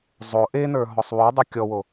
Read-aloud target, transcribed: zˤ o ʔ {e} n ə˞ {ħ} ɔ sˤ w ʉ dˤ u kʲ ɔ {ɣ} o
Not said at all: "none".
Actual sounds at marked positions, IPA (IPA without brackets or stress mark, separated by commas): e, ɦ, w